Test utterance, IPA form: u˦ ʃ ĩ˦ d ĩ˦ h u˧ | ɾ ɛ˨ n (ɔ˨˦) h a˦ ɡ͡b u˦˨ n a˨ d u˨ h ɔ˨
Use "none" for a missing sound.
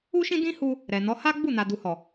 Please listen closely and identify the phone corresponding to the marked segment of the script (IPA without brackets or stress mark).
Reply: ɔ˨˦